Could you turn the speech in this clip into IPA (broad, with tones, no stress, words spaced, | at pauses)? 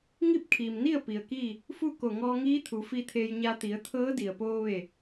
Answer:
ŋi˥˨p̚kʰiː˩mni˥˨ə̯ pi˩ə̯kiː˥˨ | fu˥˨ ko˧˩ŋɔː˧ŋiː˧˥ t̪ʰu˩˧fi˧t̪ʰeː˧jɲa˧ t̪i˩˧ə̯ t̪ʰɤː˧˥di˩ə̯poː˧ ʋe˧˩